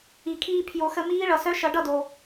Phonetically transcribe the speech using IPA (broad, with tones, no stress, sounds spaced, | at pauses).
i˩ kʰ iː˧ pʰ j o˨˩˦ x ə˧ m iː˦˥ ɭ ʌ˩ s œ˦˥ ʃ ʌ˨˩˦ ɖ ʌ˥˩ d o˩